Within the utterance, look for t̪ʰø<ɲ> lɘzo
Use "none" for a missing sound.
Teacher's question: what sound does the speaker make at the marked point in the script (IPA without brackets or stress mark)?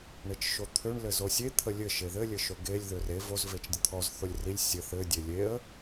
ɳ